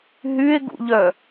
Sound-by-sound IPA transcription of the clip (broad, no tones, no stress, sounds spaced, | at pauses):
ɦ y e̯ ɡ ṵ ʎ œ